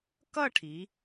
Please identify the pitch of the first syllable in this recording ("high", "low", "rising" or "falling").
falling